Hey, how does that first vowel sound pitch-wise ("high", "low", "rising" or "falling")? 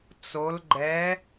rising